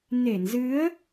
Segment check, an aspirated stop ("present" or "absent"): absent